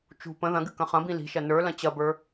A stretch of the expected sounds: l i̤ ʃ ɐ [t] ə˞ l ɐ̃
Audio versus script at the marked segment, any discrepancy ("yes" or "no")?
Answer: yes